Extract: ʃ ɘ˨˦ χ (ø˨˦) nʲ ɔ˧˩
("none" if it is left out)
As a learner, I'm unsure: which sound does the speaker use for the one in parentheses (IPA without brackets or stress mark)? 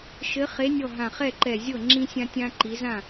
e˨˦